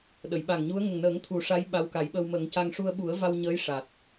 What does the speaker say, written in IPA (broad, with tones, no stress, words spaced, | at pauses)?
ɗə˨˩˨jɓa˨˩ŋɲu˧˥ə̯ ŋə˨˩ŋnəː˨˩˦ŋ t̪ʰu˨˩˦ʂa˧˥j ɓa˧˥wka˨˩˦jɓə˧w mə˨˩˦ŋca˧ŋ ʂu˧ə̯ɓu˨˩˦ə̯va˧wɲəː˧˥j ʂa˨˩t̚